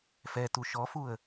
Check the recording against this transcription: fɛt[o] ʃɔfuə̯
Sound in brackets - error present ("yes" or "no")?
yes